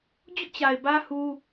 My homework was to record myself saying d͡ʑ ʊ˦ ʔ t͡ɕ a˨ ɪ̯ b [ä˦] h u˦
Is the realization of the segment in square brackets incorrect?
no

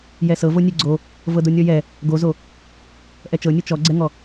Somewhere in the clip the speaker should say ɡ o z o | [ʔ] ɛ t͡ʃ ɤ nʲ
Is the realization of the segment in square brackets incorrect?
no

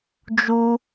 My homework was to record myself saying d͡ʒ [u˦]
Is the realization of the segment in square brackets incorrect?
no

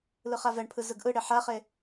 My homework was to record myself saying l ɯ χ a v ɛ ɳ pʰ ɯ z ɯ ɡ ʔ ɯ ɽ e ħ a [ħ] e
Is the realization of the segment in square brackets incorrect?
yes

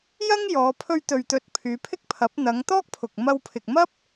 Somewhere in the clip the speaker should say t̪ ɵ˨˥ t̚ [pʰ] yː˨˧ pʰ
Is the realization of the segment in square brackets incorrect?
no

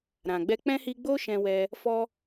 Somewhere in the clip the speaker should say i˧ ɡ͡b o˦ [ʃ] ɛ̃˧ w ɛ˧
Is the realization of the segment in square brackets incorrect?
no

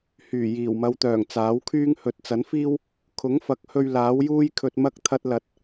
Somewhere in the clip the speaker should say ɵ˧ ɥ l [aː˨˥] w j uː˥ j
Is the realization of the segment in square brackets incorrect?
no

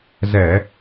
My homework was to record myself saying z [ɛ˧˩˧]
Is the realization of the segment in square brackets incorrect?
no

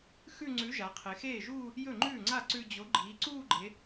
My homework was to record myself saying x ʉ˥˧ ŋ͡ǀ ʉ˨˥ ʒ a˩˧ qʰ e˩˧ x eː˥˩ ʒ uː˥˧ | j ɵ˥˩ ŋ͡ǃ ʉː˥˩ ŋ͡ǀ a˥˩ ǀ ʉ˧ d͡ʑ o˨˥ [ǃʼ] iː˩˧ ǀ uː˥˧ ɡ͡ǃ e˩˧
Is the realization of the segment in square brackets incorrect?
yes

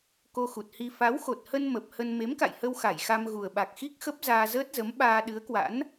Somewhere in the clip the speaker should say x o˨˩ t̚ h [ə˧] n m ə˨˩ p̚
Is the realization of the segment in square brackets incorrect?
no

